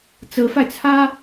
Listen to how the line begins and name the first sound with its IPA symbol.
t͡s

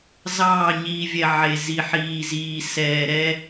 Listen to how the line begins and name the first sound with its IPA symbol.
z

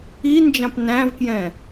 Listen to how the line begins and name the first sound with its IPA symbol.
i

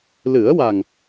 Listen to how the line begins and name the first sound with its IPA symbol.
l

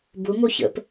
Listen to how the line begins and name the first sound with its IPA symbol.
b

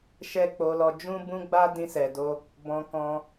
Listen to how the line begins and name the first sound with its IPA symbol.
ʃ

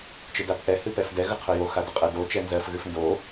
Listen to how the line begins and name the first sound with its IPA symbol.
t͡ʃ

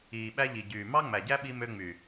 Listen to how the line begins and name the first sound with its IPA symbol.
iː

